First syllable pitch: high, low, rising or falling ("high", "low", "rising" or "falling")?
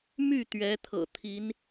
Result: falling